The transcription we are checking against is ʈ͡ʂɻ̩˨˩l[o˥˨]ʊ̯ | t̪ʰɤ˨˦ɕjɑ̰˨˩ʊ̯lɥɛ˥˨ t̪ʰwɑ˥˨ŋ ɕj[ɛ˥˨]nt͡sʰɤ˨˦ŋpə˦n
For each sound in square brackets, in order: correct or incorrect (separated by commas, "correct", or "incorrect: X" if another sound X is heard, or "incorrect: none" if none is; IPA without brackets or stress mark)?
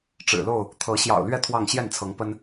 correct, correct